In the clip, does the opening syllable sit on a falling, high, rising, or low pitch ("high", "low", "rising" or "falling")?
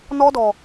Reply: high